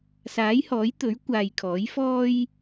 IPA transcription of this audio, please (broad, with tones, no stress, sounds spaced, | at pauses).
s aː˨˥ j h ɔː˨˥ j t̪ ɵ˨˥ ɥ kʷ aː˨ j kʰ ɔː˨˥ j f ɔː˥ j